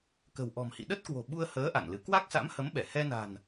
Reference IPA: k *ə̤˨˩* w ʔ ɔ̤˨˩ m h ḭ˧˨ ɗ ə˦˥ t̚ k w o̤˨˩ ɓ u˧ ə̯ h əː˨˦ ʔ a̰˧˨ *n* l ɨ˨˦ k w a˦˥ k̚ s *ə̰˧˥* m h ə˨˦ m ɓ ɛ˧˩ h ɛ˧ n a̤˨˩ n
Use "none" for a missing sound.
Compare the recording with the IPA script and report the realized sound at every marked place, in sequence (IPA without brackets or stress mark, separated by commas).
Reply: ə̤˨˩, n, a̰˧˥